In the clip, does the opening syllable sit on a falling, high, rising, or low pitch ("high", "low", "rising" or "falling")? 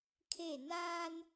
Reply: falling